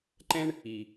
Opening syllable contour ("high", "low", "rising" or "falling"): high